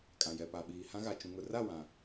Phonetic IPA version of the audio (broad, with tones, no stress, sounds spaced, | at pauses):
kʼ ã˨ j ɛ˨ p a˨ ɓ iː˨ h ã˦ ɣ a˨ t͡ʃ ũ˨ ŋ ʊ˨ r a˦˨ w ã˨